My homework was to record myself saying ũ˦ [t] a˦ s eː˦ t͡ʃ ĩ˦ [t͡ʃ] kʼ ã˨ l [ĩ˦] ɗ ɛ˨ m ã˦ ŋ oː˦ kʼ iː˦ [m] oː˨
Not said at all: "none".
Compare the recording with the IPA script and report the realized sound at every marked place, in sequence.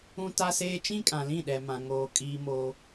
t, none, ĩ˦˨, m

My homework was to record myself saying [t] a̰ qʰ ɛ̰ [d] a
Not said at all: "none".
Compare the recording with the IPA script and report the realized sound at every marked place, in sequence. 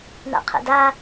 n, d

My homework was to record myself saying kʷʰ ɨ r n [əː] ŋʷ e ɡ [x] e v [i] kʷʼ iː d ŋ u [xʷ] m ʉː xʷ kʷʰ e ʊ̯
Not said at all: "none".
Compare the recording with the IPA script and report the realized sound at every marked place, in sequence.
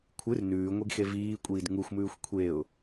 ʉː, x, iː, xʷ

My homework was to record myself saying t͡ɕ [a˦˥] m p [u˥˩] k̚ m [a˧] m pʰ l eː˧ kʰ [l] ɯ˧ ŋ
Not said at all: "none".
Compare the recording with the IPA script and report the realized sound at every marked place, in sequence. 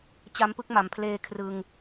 a˦˥, ɯ˥˩, a˩˦, r

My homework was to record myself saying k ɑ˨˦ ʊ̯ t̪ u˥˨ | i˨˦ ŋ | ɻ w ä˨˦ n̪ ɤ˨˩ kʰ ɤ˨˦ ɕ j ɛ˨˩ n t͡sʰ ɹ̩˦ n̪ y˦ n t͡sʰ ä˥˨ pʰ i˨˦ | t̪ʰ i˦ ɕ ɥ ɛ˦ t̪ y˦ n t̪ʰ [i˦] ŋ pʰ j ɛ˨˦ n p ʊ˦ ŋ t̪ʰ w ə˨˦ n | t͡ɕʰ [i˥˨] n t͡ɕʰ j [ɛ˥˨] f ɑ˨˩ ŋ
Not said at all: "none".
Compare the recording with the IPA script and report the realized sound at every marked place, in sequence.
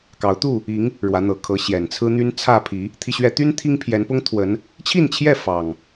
i˦, i˥˨, ɛ˥˨

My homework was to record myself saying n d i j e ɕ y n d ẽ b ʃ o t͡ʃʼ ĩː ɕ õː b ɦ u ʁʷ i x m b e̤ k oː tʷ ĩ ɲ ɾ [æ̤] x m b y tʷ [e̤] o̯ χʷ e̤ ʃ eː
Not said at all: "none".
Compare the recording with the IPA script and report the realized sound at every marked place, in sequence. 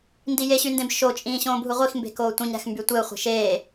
æ̤, e

